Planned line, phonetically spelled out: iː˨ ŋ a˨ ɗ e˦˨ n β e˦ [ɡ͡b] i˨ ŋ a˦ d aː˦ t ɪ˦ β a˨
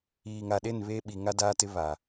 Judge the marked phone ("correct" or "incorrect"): incorrect